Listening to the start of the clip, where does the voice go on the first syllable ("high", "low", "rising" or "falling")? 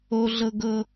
high